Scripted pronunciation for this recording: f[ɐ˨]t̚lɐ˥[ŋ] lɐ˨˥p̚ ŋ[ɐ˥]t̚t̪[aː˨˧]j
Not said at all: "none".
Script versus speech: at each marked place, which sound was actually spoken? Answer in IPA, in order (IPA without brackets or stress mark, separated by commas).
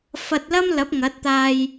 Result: ɐ˧, m, ɐ˨˥, aː˧